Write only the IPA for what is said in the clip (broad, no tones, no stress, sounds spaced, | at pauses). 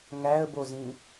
ŋ æ ə̯ b o z ĩ